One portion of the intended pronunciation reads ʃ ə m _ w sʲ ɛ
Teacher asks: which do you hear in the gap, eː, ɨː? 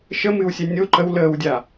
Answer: ɨː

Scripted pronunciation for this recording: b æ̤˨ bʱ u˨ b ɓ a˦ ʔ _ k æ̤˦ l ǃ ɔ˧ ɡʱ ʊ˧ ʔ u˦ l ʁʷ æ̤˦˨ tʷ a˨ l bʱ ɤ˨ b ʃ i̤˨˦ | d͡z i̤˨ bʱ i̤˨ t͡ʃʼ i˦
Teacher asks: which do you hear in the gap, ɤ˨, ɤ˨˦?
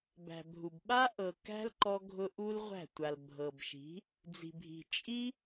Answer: ɤ˨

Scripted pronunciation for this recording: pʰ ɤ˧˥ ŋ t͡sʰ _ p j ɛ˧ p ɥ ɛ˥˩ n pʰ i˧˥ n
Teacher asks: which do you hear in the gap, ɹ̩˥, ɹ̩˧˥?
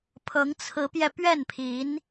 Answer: ɹ̩˧˥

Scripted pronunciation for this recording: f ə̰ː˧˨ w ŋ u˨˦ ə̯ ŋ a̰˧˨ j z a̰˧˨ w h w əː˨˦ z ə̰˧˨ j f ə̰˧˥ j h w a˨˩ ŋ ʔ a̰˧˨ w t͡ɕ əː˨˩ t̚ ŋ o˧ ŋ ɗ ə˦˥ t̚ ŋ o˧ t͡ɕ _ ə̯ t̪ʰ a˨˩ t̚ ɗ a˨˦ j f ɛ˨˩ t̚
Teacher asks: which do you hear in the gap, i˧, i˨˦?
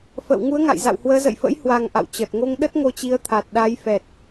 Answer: i˨˦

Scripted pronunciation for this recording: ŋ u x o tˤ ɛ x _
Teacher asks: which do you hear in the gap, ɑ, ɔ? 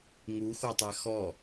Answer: ɔ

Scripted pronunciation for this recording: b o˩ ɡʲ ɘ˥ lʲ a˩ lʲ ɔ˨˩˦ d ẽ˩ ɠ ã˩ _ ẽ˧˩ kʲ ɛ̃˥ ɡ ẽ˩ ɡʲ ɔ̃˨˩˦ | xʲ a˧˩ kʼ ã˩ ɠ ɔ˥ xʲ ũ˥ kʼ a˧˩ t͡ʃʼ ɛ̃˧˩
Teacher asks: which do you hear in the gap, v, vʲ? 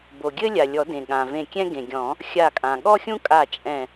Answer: v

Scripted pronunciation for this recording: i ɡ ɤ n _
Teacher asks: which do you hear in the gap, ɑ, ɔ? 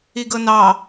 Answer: ɑ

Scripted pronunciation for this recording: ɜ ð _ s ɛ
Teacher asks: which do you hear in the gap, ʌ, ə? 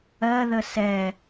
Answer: ə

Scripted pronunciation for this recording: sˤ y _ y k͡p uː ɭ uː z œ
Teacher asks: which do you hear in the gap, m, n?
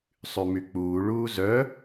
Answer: m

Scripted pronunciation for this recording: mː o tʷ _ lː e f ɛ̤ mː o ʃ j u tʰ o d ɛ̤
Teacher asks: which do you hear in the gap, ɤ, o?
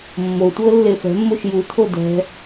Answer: ɤ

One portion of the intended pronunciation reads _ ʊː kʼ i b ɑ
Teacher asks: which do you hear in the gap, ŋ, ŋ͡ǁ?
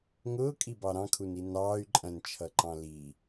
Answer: ŋ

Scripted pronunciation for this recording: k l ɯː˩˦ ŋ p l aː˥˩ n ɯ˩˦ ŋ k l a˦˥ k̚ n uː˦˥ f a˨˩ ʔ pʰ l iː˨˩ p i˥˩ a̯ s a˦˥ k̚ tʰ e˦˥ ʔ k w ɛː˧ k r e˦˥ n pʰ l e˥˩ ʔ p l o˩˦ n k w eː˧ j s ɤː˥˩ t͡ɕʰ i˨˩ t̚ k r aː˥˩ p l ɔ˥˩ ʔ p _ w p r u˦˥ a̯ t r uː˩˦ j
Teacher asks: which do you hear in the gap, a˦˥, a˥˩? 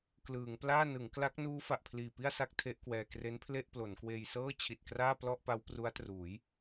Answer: a˦˥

